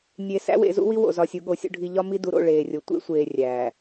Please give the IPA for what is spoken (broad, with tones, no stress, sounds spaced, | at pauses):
nʲ e˨ s æ̰˦ w ḛ˨ z ṵ˦ w i˦ w o̰˨ z ɒ˨ sʲ u˨ ɠ o˨ sʲ ṵ˨ ɖʱ i˨ ʎ ɒ˦ m i˦ d u˨ ɾ o̰˦˨ ɭ eː˨ rʲ o˨ tʷ ḛ˦ sʷ eː˨ rʲ æː˨